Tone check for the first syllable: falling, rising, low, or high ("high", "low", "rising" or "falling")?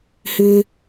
high